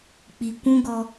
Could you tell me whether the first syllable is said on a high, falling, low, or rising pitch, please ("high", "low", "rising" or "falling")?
low